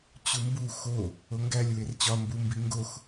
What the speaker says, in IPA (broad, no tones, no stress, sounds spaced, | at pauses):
t͡ɕ u m b u x o | o ŋ ɡ æ lʲ w e r t͡ɕ ɒ m b u m b i ŋ ɡ o x